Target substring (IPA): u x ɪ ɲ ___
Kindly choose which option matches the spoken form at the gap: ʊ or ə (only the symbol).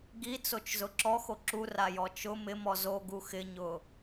ʊ